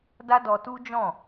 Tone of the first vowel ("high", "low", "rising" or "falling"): high